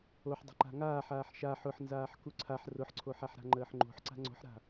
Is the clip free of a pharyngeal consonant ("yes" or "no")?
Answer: no